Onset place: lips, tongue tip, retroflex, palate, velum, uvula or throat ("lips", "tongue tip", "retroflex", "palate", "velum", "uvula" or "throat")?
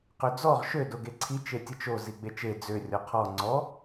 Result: uvula